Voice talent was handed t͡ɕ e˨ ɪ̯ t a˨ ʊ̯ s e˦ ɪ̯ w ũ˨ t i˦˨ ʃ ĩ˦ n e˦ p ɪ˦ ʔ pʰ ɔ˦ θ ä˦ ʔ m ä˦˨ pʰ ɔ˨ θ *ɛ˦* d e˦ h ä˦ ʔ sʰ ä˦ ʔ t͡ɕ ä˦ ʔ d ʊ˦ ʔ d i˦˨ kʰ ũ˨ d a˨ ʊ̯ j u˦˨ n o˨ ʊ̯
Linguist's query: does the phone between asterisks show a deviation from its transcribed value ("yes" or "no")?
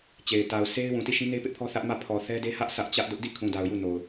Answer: no